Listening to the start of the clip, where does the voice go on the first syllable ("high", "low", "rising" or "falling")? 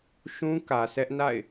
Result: high